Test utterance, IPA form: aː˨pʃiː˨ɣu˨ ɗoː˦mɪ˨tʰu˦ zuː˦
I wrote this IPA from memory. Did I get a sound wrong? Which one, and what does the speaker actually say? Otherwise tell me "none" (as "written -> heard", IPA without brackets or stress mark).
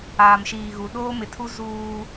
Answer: p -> m